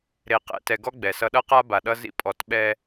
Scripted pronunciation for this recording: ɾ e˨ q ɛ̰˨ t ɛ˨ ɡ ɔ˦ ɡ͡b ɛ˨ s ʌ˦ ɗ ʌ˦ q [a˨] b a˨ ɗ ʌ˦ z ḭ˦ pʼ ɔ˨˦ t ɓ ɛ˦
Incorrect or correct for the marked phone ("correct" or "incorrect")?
incorrect